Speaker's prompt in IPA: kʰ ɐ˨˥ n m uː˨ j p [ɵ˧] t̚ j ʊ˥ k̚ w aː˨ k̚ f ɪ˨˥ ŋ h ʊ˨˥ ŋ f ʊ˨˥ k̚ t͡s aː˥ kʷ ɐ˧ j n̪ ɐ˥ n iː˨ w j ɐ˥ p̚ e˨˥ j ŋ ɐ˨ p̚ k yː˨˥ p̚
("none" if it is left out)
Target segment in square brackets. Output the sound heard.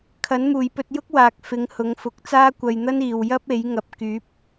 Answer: ɵ˧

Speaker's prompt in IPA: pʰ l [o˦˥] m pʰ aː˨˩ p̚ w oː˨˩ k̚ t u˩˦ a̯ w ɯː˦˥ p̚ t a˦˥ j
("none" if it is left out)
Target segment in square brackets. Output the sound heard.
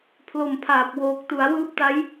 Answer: o˨˩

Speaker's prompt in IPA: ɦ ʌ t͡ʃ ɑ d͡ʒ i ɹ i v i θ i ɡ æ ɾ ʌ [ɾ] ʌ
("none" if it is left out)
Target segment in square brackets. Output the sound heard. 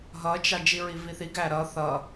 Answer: θ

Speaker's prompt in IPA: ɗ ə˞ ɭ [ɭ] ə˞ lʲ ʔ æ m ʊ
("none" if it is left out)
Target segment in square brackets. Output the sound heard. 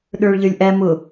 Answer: ʎ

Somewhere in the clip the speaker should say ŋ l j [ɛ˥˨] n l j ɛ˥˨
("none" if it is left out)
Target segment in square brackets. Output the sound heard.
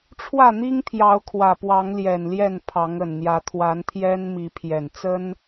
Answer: ɛ˨˩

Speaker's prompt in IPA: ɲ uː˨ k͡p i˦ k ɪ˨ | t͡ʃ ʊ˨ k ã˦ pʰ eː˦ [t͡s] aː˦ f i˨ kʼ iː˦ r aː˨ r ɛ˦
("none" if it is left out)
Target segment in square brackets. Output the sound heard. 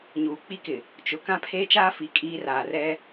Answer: t͡ʃ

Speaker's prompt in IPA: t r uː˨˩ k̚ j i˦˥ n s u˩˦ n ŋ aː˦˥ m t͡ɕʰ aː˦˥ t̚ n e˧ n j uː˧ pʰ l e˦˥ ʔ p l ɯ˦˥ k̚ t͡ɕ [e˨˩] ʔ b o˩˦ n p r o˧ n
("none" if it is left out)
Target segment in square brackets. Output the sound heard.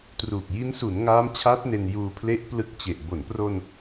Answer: e˨˩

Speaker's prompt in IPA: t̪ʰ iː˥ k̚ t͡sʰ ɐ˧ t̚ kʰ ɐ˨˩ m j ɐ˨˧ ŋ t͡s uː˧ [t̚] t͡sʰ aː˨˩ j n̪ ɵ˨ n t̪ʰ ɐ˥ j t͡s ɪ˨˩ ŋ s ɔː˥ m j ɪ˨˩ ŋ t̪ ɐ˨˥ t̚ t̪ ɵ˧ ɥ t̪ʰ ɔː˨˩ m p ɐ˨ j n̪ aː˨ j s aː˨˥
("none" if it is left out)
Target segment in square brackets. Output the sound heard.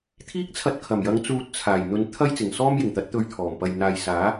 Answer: t̚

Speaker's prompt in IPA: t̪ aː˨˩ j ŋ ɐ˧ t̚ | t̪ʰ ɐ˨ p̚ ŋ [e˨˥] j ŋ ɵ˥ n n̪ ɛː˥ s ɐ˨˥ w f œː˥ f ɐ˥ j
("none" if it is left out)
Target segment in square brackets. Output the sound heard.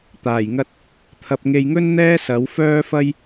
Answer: e˧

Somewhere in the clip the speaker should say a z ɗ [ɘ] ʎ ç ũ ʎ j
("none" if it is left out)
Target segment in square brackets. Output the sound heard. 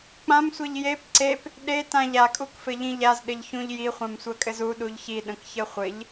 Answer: ɘ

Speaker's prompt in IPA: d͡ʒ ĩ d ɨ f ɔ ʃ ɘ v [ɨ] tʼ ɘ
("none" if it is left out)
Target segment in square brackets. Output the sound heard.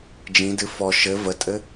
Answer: ə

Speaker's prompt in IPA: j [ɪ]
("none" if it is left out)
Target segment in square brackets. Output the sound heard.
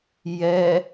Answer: ɛ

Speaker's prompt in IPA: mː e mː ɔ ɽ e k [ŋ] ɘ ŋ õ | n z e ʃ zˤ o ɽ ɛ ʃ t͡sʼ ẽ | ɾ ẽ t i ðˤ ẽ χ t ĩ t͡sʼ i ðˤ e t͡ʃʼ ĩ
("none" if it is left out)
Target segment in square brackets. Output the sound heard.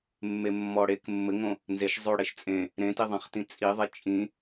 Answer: mː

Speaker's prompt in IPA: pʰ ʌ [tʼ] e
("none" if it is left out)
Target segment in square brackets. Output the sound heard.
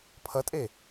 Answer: tʼ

